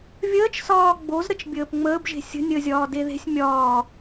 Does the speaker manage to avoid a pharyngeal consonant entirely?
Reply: yes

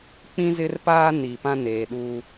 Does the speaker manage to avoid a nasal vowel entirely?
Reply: no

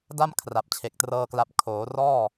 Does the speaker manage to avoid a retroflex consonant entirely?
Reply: yes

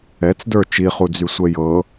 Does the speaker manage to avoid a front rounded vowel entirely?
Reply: no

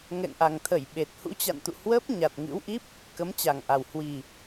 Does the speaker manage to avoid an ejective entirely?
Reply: yes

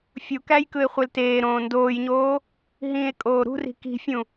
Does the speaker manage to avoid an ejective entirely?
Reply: no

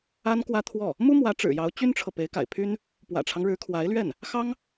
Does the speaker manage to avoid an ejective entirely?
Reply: yes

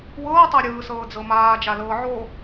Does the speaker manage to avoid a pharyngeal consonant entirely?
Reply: no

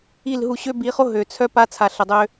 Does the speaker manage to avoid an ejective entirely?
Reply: yes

